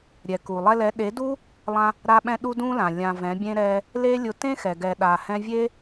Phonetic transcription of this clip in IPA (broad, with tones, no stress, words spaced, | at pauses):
ɾʲɛ˨ku˨ lˠɛ˧lɛ˨˦ ɗe˨˦du˦ | lˠã˧ | ɾa˧ɓɛ̃˧ ɗu˦dũ˦lã˨ lʲã˨ vɛ̃˨˦bʲẽ˦ ɾɛ˦ | le˦lʲʊ˧ tẽ˦xɛ˨ɡɛ˨ ɗa˨hɛ̃˧vʲe˦